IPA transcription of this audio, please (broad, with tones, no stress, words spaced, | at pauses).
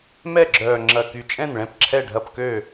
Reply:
mɛ˥˩ɡ͡ǁœː˨˩ ŋ͡ǁɐ˨˩ky˨˩ t͡ʃʼɛ̃˥˩nɭɛ̃˥˩p ǁʰɛ˥˩ɖʱɐ˥˩pkø˥˩